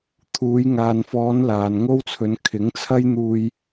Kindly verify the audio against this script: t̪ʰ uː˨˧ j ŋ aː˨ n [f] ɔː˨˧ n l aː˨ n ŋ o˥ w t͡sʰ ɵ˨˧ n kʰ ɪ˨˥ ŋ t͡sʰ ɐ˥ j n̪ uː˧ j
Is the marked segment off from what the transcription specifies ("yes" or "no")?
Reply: no